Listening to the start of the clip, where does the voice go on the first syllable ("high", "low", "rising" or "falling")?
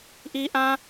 high